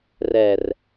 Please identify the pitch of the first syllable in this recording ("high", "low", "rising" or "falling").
low